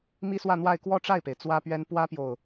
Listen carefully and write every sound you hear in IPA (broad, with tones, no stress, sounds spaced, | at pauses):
m i˥ s w ä˥˧ n̪ w a˥˧ ɪ̯ k w ɔ˥˧ ʈ͡ʂ a˥˩ ɪ̯ p e˩ ɪ̯ t͡s w ä˥ p ɥ ɛ˥ n p w ä˥ p j o˨ ʊ̯